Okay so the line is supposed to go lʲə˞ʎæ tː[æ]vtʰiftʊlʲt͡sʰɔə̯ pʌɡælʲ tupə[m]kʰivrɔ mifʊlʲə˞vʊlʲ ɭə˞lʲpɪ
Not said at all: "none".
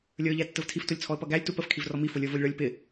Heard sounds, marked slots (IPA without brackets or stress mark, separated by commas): ə, f